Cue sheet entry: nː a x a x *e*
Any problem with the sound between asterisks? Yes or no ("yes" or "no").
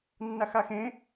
yes